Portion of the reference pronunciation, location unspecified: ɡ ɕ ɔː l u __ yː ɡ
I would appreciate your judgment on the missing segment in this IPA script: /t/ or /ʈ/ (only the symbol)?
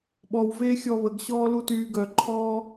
t